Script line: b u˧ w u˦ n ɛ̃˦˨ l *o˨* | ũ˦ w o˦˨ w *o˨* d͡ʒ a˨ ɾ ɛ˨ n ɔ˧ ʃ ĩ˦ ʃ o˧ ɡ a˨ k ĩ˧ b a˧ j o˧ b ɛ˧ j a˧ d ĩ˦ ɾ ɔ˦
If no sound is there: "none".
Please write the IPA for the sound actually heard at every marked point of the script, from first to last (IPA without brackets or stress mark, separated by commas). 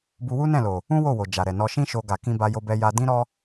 o˨, o˨